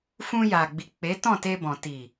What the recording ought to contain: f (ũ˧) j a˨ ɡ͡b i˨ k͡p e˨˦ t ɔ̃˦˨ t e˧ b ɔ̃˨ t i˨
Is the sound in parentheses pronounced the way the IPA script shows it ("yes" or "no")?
yes